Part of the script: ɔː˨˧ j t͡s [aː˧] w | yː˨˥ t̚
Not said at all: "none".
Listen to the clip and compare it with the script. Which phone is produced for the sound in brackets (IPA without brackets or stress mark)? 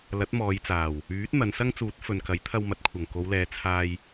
aː˨˩